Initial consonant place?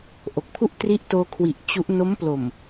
glottal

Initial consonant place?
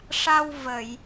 retroflex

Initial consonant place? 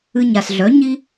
palatal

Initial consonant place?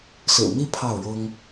alveolar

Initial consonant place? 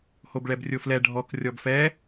glottal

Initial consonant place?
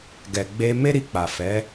velar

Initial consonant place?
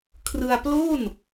velar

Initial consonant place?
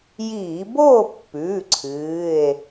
palatal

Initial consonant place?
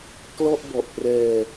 velar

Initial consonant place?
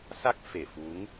alveolar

